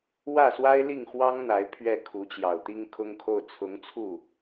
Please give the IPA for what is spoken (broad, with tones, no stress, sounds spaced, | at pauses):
w ä˥˩ s w a˥ ɪ̯ l i˥˩ ŋ x w ɑ˥ ŋ n̪ a˧˥ ɪ̯ pʰ ɥ ɛ˥˩ kʰ u˧˥ t͡ɕ j ɑ˨˩ ʊ̯ t̪ i˥ ŋ kʰ ʊ˥ ŋ kʰ o˥˩ ʊ̯ t͡sʰ ʊ˧˥ ŋ t͡sʰ u˥˩